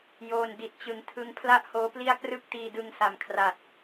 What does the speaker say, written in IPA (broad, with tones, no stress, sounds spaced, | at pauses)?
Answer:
j oː˧ n d i˨˩ t̚ t͡ɕ ɯ˩˦ ŋ tʰ ɯ˦˥ ŋ pʰ l a˥˩ ʔ h oː˦˥ p l i˥˩ a̯ k r ɯ˦˥ k̚ t iː˧ d ɯ˧ ŋ s a˨˩ m kʰ r a˨˩ t̚